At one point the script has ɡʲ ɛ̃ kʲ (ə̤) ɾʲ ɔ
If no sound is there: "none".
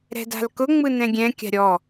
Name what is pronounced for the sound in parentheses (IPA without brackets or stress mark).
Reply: a̤